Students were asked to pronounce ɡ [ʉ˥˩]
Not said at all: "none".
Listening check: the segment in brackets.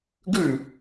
ʉ˥˩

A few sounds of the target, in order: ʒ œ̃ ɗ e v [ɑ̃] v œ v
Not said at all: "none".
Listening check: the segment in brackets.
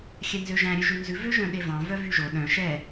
ɑ̃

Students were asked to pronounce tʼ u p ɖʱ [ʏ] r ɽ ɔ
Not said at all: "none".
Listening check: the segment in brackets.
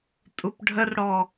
ə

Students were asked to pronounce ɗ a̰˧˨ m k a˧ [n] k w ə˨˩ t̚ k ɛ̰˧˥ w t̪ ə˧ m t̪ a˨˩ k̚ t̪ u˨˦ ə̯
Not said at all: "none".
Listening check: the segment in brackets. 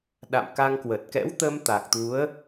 ŋ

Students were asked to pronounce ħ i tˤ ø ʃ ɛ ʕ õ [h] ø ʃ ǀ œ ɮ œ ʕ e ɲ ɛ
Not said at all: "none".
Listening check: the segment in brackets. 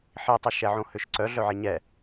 h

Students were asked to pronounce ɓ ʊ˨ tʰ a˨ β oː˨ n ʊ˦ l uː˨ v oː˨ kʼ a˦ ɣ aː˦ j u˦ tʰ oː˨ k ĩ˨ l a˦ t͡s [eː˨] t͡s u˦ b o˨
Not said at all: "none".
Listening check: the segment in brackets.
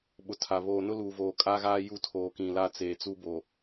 eː˨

